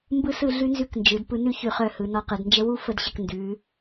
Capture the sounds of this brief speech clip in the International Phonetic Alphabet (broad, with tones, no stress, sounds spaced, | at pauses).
m b ɯ˥ s ɯ˥˧ ɮ ʉ˥ n z ʉ˥˧ k n d͡ʒ ɯ˩˧ d p ɯ˧ n ʉ˥˧ ç ʉ˧˩ χ œ˧˩ h ɯ˩˧ n ɔ˧ q ɯ˩˧ d n d͡ʒ ə˥ w u˥ f ə˧ d ɕ ə˧˩ k n d ʉ˩˧